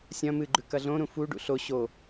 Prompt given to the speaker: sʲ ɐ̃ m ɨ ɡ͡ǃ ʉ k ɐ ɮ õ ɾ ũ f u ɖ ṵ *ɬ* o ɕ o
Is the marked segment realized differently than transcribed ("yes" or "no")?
no